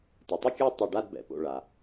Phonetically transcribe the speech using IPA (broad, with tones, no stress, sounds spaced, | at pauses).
t ɯ˩ tˤ ɯ˥˧ kʲ ɔ˥˧ tˤ ɯ˧˩ ɖ a˥˧ d b ɛ̰˩ p o̰˧˩ ɭ a˩